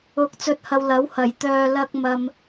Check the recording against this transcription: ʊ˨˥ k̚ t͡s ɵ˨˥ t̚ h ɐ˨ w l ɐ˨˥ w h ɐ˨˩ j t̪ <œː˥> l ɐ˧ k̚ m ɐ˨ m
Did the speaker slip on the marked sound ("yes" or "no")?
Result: yes